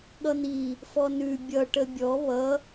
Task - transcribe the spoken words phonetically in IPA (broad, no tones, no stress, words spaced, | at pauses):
ɠʌn̪i | fɔnʉ bʲʌ ʈəbʲɔ βʌ